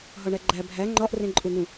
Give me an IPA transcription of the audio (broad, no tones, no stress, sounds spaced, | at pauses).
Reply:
ɦ ɒ ɳ æ ɡ͡ǃ æ bʱ æ ŋ͡ǃ ɒ ʔ r ẽ ǃʼ u n̪ ũ